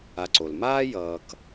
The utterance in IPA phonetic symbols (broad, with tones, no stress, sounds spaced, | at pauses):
a˨ ǀ o˩ l m aː˥ j ʌː˨ k